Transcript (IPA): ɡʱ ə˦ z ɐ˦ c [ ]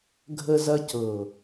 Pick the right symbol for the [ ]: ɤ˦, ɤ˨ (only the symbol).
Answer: ɤ˨